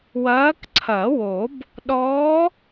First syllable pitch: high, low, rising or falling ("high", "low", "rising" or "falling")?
rising